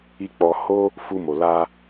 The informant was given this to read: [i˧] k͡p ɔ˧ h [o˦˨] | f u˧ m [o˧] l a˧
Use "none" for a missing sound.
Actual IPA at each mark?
i˧, o˦, o˨

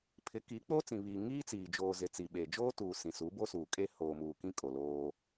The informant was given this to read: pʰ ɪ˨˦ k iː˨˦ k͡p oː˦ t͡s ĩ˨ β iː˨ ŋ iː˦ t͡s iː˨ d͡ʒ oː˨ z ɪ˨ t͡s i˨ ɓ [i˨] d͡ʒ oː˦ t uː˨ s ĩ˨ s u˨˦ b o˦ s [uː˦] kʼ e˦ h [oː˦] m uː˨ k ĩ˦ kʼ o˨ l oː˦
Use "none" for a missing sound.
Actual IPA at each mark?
e˨, uː˨, oː˨

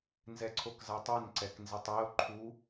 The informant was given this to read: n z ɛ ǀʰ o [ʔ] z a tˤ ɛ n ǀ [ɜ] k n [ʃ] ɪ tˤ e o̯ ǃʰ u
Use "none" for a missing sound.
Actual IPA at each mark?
k, ɛ, z

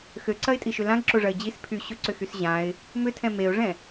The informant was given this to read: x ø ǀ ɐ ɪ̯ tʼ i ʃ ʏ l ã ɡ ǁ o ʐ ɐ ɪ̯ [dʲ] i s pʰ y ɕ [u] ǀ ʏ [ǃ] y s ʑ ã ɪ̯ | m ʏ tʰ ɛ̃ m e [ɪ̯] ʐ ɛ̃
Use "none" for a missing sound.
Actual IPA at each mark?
d͡ʑ, ʏ, x, ʊ̯

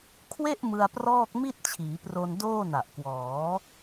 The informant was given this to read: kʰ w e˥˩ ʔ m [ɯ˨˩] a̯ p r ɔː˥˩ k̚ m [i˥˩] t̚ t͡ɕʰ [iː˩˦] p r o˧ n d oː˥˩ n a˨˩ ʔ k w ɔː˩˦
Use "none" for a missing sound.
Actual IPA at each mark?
ɯ˧, i˥˩, iː˩˦

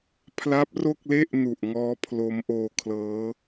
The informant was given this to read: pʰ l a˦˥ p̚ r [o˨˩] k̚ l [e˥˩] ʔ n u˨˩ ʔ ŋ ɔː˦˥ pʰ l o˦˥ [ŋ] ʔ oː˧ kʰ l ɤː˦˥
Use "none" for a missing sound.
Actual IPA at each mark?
o˥˩, e˥˩, m

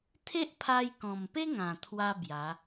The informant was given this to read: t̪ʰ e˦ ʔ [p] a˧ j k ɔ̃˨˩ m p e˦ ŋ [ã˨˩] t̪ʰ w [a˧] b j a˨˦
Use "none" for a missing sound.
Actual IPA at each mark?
pʰ, ã˨˩, a˧

